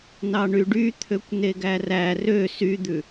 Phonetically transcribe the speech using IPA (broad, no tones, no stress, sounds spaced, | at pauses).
n ɑ ɳ y ɖ y t̪ʰ ø kʷ n e ɡ æ r æ r ø s y d̪ ʉ